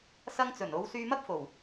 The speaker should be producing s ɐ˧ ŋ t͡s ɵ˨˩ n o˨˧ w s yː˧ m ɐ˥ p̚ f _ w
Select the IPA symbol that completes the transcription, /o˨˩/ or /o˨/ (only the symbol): o˨˩